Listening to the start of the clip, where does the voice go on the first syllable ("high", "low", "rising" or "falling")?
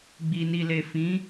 low